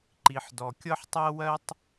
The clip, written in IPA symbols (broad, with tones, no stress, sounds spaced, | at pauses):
ǃ i˩ ħ d ɔ˩ kʲ ɤ˥ ħ tˤ ɜ˥ w ɜ˥ tˤ